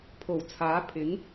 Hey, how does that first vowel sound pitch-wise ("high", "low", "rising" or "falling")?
low